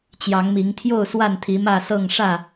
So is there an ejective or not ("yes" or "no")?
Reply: no